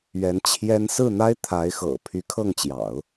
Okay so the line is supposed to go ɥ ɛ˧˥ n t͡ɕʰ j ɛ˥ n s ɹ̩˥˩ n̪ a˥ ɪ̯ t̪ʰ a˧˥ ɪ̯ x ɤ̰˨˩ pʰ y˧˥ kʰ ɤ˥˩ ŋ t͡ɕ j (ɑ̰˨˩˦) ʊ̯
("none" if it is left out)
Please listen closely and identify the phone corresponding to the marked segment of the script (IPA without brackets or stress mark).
ɑ̰˨˩˦